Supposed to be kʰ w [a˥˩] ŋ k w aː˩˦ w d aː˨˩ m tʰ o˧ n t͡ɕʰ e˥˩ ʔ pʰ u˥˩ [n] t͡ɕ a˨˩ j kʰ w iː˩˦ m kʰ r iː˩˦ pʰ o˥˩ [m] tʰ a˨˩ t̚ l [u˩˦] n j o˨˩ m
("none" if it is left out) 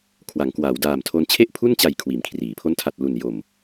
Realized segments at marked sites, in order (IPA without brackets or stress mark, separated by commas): a˩˦, n, n, u˨˩